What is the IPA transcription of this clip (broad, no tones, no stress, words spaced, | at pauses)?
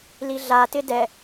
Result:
liɮa tɪdɛ